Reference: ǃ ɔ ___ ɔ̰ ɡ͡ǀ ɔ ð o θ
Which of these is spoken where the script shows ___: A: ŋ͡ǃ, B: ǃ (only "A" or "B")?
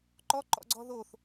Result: B